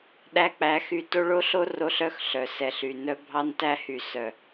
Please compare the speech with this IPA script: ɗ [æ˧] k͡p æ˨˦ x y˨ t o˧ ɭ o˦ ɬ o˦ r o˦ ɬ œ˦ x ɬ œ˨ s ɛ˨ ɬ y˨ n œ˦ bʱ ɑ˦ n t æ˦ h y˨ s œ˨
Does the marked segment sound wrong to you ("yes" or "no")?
no